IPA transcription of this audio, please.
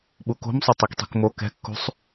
ɓ u k o̤ m sˤ o tˤ i k tˤ i̤ k m o k ɛ̤ kː ṳ sˤ

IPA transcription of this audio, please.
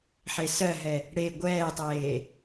ħ e s ɜ ɦ ɛ | ɽ e ɡʷ ɛː tˤ eː

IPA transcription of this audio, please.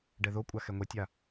ɖ ɛ ð o kʷʼ a x ɛ ŋʷ ɛ tʲ a

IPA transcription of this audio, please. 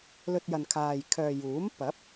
l ɵ˧ t̚ j ɐ˨ n kʰ aː˨ j kʰ œː˨ j uː˨˥ m p ɐ˨˥ p̚

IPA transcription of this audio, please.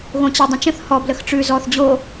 ɣ õ t͡ɕ ɪ dˤ ə̃ t͡ʃ ə̃ θ h ɔ b l ə x ʈ͡ʂ ʉ z ɔ θ d͡ʑ o

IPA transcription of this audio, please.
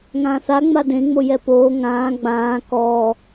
ŋ ãː θ a ŋ͡m a d ẽ ŋ͡m o j ɛ p oː ŋ ãː ɡ͡b ãː k ɔː

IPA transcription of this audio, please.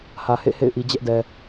h ä˨ h ḛ˦˨ h ḛ˦˨ ɪ̯ ʔ i˨ d͡ʑ ɛ˦ ʔ d ɛ˨

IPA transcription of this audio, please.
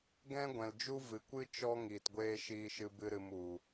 ɡ ɛ̃˦ ɡʷ ɛ̃˨ l d͡ʒ u˦ v ɨ˨ kʷ ɨ˦ t͡ʃ ɔ˦ ŋ iː˨ t ɡʷ eː˧ ʃ iː˧ ʃ ɨ˧ b ɨ˧ ɾ ɨ˨ m u˨

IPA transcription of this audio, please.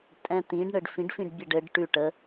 tʼ ɛ̃ t̪ ĩ ɖ ɳ ɘ ɖ f ĩ ɖ f ĩ ɖ bʲ ɛ ɖ ɘ ɖ ʈ ʉ ʈ ə

